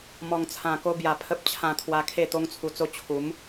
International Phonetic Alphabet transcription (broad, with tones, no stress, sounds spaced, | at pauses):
m ɔ˨˩ ŋ t͡sʰ ã˨˩ k o˧ b j a˨˩ pʰ ə˦ p̚ t͡ɕʰ ã˧ t̪ʰ w a˧ kʰ e˥˧ t̪ o˦ ŋ t͡sʰ u˧ t͡s o˥˧ t͡ɕʰ u˨˦ m